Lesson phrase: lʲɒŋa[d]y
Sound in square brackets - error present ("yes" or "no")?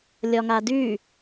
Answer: no